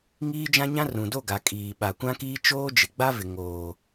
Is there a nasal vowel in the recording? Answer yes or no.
yes